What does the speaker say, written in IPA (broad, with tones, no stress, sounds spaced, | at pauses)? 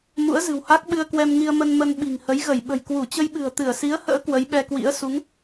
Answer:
m ṵ˧˥ ə̯ z ɨ̤˨˩ w h a˦˥ k̚ ɓ ɨ˧ ə̯ k w ɛ˧ m ŋ i˧ ə̯ m ə˧ n m ə˧ n ɓ i̤˨˩ ŋ h ə˨˦ j ɣ ə˧˩ j ɓ ə̤˨˩ j k w u˧˩ t͡ɕ ə˧ j ɓ ɨ̤˨˩ ə̯ t̪ ɨ˧˩ ə̯ s i˨˦ ə̯ h ə̰ː˧˥ k w ə˨˦ j ɓ ɛ˧ k w ḭ˧˥ ə̯ s u˨˦ ŋ